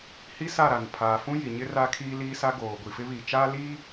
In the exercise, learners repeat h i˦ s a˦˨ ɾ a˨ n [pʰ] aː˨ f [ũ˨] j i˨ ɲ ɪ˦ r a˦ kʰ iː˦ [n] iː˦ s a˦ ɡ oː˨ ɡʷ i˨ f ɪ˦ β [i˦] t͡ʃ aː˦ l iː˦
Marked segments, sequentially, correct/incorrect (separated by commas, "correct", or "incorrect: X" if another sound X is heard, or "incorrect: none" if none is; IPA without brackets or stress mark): correct, incorrect: ũ˦, incorrect: l, incorrect: i˨